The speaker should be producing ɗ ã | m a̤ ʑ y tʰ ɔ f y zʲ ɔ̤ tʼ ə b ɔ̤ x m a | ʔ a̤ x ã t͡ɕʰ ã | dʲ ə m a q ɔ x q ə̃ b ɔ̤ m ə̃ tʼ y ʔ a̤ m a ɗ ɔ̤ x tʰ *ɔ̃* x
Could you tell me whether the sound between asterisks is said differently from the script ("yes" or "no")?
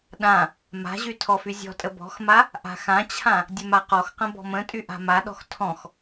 no